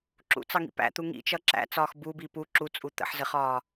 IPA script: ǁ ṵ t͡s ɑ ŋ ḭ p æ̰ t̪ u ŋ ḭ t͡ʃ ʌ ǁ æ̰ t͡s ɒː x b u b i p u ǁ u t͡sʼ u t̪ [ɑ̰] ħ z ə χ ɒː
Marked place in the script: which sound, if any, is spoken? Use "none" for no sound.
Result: ə̰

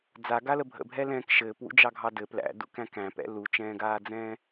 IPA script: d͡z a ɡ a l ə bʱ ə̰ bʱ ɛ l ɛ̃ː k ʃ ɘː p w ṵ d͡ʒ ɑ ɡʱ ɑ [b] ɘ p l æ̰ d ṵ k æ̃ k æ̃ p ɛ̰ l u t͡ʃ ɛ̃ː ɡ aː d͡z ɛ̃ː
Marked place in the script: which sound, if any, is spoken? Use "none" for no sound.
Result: d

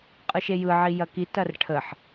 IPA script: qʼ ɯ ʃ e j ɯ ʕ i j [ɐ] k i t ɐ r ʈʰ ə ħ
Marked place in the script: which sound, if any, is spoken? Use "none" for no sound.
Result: ɐ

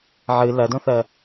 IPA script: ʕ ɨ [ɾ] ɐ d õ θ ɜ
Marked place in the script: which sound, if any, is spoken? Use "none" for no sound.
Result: l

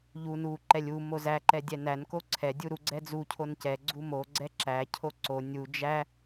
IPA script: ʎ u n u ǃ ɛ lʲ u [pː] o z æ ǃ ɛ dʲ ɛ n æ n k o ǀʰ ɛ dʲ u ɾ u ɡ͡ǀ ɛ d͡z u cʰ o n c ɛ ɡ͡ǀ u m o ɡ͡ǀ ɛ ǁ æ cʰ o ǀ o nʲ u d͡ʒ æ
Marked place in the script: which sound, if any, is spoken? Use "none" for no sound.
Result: m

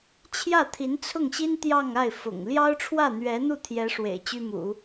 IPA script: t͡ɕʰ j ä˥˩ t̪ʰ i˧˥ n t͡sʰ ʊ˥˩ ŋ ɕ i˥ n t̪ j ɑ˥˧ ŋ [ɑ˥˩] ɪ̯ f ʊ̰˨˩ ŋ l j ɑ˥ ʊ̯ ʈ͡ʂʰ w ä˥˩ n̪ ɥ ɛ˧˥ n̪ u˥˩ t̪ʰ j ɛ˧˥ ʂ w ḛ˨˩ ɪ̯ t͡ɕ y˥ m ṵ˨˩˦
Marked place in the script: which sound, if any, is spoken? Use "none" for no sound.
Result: a˥˩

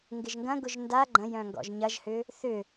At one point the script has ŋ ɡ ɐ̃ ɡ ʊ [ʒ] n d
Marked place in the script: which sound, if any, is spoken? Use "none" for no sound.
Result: ʒ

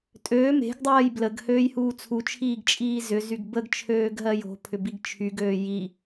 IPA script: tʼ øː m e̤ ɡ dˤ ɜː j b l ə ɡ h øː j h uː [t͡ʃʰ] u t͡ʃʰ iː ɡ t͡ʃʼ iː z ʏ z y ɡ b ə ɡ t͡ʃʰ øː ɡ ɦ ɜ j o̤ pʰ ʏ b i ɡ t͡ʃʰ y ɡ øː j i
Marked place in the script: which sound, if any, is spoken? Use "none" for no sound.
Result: t͡sʰ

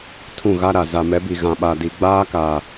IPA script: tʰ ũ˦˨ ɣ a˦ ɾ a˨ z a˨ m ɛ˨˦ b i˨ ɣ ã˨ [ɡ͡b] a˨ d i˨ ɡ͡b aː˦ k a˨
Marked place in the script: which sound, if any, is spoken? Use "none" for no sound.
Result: ɓ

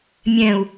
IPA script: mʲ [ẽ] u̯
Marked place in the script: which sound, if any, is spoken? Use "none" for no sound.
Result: ɛ̃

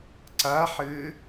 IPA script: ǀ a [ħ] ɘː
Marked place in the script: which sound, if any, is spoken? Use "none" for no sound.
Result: ħ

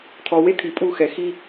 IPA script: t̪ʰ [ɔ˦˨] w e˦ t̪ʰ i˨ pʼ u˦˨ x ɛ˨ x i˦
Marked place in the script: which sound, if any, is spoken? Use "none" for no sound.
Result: ɔ˨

